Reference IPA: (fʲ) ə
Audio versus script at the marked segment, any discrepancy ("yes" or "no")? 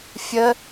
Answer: no